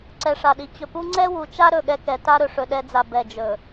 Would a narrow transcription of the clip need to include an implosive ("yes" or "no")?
yes